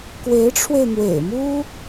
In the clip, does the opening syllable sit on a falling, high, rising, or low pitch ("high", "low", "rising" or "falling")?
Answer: rising